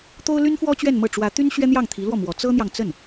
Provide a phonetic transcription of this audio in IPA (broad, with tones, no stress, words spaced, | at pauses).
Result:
t̪o˥ʊ̯ly˥nfwɔ˥ t͡ɕɥɛ˥˧nmɤ˥˩ ʈ͡ʂwä˧˥t̪y˥n ɕɥɛ˥n̪jɑ˥˩ŋt̪ʰi˧˥lwɔ˥˩ mwɔ˧˥ t͡sɤ˥n̪jɑ˨ŋt͡sə˥˩n